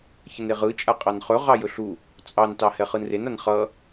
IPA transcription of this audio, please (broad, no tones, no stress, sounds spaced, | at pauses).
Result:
ç ə n e ʁ ɯ t͡ʃʼ a qʼ ɑ n χ ɵ ʁ ɑ j ɵ ɬ u | t͡sʼ ɑ n t ɑ h ɛ χ ɯ n r e n a n χ ʌ